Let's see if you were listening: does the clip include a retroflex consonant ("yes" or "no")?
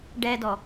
yes